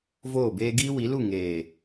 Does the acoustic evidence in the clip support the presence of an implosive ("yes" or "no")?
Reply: no